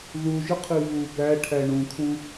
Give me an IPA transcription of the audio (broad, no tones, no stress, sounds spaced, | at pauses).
ð u ʒ ɨ qʰ i v u b æ ʈʰ æ ɳ ũ kʰ ũ